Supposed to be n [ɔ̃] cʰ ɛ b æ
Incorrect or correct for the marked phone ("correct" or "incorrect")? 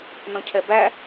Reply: correct